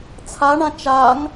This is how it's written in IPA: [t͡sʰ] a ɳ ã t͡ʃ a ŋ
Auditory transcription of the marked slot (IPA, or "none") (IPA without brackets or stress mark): t͡sʰ